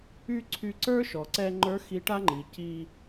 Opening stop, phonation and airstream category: click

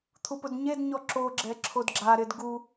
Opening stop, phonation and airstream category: aspirated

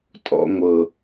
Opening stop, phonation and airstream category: ejective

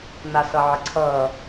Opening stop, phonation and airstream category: click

